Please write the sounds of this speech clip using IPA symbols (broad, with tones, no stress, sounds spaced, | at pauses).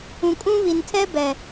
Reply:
ũ˨ kʼ ũ˦ β i˨ n tʰ ɛ˦ b ɛ˨